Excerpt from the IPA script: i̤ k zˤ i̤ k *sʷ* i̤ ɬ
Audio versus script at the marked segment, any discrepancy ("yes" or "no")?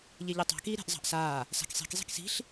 yes